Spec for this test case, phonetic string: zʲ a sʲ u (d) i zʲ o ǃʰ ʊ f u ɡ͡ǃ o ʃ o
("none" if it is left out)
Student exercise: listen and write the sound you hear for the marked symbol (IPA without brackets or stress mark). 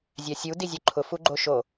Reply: d